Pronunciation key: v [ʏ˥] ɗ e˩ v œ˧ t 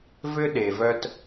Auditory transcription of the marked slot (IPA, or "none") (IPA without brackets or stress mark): ʏ˥